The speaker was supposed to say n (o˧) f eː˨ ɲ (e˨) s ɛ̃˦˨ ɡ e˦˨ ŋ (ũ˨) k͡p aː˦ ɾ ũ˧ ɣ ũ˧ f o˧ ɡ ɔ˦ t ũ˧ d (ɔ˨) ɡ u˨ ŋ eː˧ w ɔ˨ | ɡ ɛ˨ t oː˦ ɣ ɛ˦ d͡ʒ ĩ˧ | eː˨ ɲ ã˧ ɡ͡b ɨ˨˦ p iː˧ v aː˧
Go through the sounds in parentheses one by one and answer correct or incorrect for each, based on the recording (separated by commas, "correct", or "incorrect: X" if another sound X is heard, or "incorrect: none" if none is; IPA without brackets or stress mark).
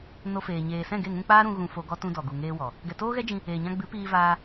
correct, incorrect: eː˨, incorrect: ũ˧, correct